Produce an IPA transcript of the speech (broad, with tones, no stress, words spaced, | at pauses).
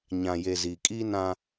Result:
ɲã˨je˨ ziː˨kʼiː˦ nã˦